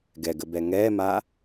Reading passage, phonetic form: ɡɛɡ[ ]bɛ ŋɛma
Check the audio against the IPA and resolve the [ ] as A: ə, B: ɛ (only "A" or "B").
A